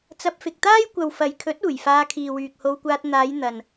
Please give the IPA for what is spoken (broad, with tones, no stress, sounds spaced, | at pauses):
t͡s ɐ˧ p̚ f ɪ˨ k̚ t̪ aː˥ j kʷ ɐ˨ w f ɐ˨ j kʰ ɵ˨˥ t̚ uː˨˩ j f aː˧ kʰ iː˨ w yː˨ k̚ h o˧ w kʷ aː˧ t̚ n̪ aː˨˧ j n̪ ɐ˨ n